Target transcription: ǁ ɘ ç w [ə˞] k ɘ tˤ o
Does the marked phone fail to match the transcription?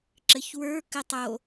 no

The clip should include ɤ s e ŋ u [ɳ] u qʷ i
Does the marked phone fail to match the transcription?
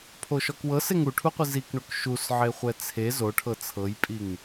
yes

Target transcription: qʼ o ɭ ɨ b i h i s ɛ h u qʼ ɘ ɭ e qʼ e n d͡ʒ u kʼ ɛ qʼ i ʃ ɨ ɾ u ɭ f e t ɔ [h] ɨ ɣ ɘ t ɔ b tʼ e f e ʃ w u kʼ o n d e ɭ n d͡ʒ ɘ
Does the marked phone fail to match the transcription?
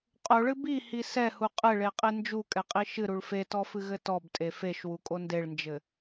yes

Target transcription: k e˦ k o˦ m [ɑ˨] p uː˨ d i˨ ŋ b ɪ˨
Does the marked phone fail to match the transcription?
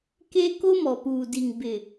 yes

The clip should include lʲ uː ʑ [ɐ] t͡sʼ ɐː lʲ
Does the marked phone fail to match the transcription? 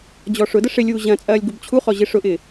yes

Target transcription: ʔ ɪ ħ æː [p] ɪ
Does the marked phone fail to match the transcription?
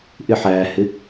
yes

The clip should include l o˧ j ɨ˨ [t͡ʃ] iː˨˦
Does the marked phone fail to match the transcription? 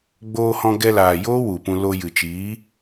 no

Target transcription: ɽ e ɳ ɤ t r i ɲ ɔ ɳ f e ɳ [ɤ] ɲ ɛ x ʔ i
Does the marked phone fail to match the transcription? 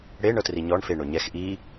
yes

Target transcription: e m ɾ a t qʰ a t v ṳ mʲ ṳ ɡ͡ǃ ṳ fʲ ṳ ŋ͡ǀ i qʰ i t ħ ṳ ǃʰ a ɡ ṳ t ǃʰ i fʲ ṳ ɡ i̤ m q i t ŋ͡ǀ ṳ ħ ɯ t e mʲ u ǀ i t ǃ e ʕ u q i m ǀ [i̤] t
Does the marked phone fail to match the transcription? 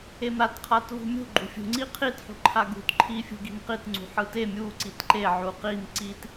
yes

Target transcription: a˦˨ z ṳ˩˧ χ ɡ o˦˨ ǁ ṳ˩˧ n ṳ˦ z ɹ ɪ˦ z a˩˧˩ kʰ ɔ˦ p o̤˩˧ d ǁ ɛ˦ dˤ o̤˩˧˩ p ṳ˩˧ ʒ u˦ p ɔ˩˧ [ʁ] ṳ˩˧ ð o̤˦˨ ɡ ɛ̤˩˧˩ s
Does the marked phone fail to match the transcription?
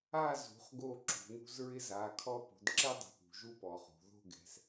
yes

